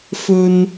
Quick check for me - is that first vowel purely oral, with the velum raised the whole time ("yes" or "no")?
yes